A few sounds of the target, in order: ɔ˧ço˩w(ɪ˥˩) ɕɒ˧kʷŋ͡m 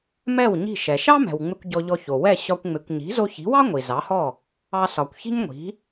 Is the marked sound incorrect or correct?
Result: incorrect